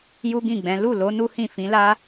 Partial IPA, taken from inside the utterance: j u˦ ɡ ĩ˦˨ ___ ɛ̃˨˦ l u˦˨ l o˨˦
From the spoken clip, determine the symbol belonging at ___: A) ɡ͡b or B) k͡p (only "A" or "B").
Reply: A